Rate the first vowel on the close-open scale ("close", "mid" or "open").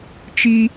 close